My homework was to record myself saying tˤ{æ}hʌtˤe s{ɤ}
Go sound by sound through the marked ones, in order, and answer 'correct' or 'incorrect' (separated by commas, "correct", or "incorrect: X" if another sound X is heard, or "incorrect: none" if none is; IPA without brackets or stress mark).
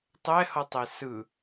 incorrect: ɛ, incorrect: ɯ